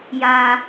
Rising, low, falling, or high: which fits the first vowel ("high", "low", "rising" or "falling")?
high